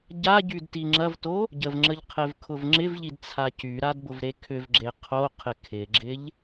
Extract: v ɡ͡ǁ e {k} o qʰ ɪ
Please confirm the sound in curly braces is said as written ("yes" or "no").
no